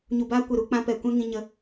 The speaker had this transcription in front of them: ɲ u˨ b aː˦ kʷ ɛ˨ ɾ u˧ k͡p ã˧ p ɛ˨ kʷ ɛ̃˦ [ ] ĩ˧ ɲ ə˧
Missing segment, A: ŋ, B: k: A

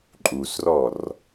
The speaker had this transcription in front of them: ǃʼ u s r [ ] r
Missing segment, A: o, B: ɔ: B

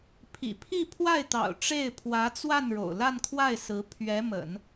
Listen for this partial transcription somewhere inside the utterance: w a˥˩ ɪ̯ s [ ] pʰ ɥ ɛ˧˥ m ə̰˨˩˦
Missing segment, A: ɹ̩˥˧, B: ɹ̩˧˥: B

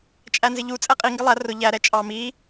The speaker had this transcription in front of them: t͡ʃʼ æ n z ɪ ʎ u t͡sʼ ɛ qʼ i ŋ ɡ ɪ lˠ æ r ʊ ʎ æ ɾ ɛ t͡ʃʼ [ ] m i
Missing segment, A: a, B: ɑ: B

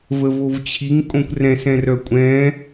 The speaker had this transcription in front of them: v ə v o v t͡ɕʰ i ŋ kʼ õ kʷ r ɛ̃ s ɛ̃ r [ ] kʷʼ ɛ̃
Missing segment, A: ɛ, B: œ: B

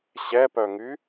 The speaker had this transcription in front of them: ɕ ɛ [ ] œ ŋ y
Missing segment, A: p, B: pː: A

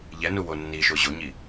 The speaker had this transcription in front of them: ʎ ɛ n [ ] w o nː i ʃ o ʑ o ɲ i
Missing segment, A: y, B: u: B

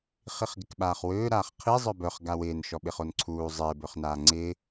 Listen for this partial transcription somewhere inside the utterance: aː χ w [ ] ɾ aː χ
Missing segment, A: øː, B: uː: A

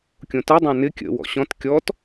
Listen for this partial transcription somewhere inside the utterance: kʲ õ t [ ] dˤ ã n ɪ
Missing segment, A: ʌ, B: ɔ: A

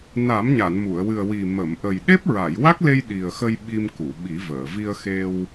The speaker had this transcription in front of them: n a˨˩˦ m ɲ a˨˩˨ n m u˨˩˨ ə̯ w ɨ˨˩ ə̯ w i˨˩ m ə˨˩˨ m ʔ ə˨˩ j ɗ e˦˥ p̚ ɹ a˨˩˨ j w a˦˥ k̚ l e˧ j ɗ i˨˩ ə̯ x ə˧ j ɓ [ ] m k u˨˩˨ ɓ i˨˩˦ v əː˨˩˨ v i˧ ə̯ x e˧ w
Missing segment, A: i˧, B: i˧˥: A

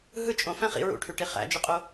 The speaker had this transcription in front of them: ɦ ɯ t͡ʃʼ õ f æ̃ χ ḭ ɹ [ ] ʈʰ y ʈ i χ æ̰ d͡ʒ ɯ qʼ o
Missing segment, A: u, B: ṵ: B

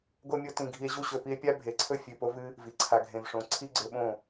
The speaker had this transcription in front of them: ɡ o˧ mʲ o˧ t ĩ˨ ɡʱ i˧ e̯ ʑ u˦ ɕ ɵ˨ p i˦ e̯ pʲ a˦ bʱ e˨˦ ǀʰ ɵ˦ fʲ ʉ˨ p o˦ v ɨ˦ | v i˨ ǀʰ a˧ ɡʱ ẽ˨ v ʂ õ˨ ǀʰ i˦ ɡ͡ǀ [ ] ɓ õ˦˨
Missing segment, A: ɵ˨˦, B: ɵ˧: B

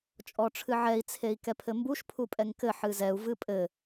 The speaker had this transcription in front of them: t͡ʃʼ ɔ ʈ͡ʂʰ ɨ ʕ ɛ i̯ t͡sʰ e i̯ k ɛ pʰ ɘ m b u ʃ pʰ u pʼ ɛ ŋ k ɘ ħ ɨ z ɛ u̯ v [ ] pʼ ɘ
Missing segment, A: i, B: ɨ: B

